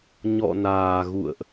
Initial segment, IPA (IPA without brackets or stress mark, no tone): ɲ